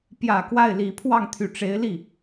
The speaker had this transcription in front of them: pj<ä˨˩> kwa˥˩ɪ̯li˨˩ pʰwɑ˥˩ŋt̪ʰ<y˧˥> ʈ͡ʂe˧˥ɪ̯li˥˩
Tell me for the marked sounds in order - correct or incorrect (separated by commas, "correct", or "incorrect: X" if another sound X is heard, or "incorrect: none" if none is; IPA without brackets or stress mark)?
correct, incorrect: y˨˩